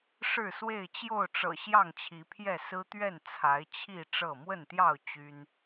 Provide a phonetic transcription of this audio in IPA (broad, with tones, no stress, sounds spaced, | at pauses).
ʂ ɻ̩˥˨ s w e˥˨ ɪ̯ t͡ɕ j o˥˨ ʊ̯ ʈ͡ʂ ɤ̰˨˩ ɕ j ɑ˥˨ ŋ t͡ɕʰ i˨˦ pʰ j ɛ˥˨ s ɹ̩˦ t̪ ɥ ɛ˥˨ n t͡sʰ a˨˦ ɪ̯ t͡ɕʰ i˥˨ ʈ͡ʂ ɤ˥˨ m w ə˥˨ n t̪ j ɑ˥˨ ʊ̯ t͡ɕ y˦ n